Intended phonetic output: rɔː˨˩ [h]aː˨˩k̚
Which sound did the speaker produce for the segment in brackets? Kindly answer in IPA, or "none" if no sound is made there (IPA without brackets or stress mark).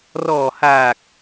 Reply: h